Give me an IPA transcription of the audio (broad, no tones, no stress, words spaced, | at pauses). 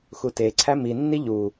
xuteǀʰæ minːi ʎu